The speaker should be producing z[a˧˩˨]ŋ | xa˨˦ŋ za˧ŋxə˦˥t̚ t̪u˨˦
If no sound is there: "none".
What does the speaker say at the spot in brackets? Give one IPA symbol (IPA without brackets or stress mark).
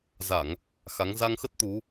a˧˩˨